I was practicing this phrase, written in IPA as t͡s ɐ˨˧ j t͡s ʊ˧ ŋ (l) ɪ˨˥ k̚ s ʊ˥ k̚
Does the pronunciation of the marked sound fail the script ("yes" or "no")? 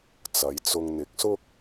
yes